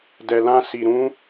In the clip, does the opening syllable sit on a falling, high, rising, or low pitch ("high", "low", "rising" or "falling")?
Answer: low